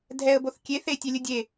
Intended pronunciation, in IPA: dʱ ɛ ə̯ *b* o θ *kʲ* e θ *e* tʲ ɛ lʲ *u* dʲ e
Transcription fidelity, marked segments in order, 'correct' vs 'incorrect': correct, correct, correct, incorrect: ɯ

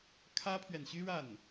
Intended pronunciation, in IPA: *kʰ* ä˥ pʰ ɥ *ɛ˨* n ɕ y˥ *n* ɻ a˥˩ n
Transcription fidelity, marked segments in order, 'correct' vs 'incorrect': correct, correct, incorrect: none

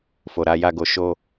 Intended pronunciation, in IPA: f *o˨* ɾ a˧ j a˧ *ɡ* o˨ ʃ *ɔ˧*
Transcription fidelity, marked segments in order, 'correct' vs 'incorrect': correct, correct, incorrect: o˧

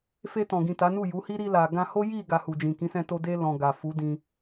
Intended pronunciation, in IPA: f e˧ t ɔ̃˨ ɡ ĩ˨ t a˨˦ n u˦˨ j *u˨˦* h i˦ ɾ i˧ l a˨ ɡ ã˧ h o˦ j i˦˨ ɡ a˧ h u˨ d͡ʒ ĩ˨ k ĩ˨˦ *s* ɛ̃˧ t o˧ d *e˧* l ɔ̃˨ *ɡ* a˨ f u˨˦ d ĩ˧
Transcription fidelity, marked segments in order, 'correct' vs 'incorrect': correct, correct, correct, correct

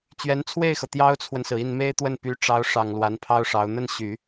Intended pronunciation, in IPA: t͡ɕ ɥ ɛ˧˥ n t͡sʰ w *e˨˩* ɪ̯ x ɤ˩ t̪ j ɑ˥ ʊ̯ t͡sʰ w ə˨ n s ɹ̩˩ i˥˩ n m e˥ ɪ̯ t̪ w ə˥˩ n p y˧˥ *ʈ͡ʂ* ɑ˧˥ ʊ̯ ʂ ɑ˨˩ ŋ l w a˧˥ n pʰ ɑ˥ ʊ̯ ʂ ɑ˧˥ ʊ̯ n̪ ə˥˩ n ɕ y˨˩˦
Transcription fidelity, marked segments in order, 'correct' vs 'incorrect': incorrect: e˥˩, correct

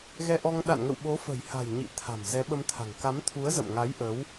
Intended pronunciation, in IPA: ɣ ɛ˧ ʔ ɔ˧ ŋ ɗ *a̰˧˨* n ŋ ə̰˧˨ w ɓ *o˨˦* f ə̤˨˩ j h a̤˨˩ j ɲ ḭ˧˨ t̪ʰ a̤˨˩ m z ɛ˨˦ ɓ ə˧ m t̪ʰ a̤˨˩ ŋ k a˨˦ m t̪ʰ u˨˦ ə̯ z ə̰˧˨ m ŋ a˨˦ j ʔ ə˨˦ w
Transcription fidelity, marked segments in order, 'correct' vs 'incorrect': correct, correct

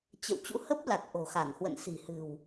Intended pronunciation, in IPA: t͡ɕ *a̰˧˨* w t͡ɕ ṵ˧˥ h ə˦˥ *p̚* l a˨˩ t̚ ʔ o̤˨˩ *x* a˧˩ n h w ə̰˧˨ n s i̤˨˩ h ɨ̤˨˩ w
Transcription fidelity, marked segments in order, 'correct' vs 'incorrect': incorrect: ə̰˧˨, correct, correct

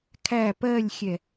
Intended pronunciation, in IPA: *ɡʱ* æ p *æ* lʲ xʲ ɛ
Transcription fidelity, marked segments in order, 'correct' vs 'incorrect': incorrect: kʰ, incorrect: ɜ

